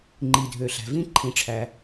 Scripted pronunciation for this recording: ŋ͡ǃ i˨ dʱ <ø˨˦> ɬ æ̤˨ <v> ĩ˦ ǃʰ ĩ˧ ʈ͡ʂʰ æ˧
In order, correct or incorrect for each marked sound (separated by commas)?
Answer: incorrect, correct